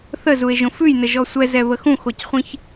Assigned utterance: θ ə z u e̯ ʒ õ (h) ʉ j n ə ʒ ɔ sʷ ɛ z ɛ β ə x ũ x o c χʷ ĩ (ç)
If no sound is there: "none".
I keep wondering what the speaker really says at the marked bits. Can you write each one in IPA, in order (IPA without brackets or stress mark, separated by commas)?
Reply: f, ç